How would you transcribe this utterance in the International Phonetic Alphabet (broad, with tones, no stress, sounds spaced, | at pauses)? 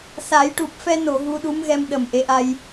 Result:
s a˨˩˦ j ʈ u˨˩ p̚ f ɛ˧ n o˨˩˨ ɣ u˧ ɗ u˧˥ m ɣ ɛ˧ m ɗ ə˨˩ m ʔ e˧˥ ʔ a˧ j